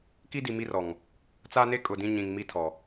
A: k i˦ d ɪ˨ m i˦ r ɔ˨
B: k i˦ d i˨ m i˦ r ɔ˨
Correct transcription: B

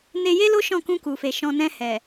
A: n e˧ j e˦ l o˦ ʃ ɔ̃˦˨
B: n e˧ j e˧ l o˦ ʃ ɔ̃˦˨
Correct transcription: A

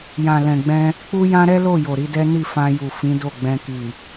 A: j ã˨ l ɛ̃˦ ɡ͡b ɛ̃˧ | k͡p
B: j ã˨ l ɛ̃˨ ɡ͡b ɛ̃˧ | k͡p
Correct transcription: B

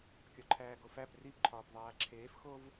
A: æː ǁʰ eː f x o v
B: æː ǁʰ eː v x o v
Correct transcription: A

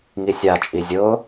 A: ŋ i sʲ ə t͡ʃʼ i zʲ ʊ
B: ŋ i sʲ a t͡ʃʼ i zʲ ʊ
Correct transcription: B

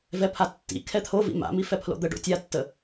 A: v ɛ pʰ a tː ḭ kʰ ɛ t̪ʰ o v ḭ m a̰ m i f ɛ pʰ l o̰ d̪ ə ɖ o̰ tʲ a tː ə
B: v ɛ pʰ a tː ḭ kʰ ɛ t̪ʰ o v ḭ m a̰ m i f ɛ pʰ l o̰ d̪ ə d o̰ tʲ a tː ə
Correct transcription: A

